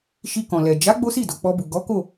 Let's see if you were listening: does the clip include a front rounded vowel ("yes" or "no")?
no